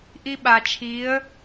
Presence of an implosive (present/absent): present